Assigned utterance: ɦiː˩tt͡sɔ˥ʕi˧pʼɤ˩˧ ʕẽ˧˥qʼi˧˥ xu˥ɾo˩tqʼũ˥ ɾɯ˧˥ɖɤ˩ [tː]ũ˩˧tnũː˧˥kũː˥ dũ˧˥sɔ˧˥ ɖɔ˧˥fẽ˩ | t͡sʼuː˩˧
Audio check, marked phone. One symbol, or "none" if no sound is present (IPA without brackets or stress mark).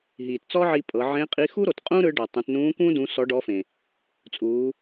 tˤ